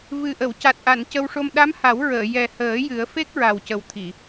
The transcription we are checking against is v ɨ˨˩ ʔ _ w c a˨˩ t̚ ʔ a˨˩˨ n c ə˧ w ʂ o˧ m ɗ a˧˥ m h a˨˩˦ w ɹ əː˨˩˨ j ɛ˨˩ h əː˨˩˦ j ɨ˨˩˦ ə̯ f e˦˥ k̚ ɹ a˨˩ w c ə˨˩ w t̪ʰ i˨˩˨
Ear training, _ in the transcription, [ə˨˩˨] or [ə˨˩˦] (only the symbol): ə˨˩˨